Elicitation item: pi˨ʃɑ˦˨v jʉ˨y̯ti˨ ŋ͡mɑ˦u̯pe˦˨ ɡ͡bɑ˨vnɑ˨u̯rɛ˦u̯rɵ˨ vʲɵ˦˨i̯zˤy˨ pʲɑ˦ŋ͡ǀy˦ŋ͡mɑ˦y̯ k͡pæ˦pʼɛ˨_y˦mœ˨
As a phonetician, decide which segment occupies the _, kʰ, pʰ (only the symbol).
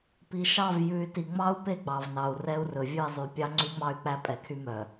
kʰ